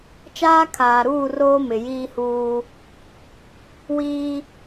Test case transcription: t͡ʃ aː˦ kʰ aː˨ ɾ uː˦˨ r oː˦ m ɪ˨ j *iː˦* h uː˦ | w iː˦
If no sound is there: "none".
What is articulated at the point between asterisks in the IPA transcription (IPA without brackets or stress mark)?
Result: iː˦